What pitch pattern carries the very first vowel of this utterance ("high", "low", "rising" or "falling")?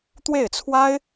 falling